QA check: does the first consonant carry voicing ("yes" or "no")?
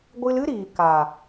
yes